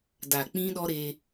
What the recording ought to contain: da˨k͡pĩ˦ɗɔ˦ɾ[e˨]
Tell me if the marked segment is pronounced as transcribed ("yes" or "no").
no